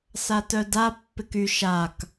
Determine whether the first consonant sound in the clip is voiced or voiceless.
voiceless